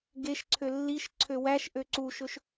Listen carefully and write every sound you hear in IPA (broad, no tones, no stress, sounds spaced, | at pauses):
ɡ e ʃ ǀʰ ø lː i ʃ ǀʰ ø w æ ʃ ʔ ø ǀ u ʃ ɵ ʃ